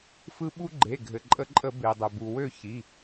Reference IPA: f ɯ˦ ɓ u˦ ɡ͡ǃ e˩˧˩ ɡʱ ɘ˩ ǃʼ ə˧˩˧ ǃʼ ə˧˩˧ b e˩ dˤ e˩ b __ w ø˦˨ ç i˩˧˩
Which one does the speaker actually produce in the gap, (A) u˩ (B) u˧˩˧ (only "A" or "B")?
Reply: A